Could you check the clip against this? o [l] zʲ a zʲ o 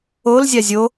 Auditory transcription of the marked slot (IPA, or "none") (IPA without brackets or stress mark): l